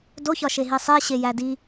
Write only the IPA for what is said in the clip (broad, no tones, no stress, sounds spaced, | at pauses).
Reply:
d o ç ɒ ʃ e ɦ i sˤ e ɕ e j æ d i